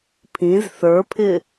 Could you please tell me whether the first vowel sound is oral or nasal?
nasal